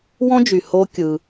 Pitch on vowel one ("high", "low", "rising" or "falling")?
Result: high